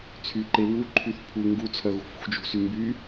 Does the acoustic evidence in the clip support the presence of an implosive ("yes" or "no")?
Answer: no